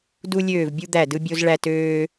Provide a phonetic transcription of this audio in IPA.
du˥lʲøː˥˨vbʲu˥ d̪æ˥˨dɯ˥ bʲo˥zɭæ˥tøː˥

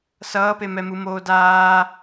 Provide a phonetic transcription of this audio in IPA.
sʌːpemɛmɯ moːdaː

